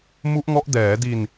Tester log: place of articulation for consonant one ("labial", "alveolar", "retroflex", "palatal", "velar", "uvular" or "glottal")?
labial